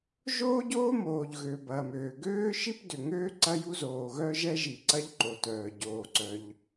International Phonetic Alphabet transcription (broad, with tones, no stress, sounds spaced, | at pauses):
ʒ oː˥ ɟ oː˥ m oː˩ ʎ ɣ ø˩ b ɐː˩ m øː˩ ɡ øː˥ ʃ i˥ p d ʏ˩ ŋ øː˥ ǀ ɐ˥ j u˥ z oː˩ ɣ œ˥ ʒ ɛ˥ ʒ i˩ ǀ ɐ˥ ʎ ǃ o˩ t œː˩ ɟ oː˩ ǀ œ˩ ʎ